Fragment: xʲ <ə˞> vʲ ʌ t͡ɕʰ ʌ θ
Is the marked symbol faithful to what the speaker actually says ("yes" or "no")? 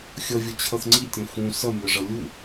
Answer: no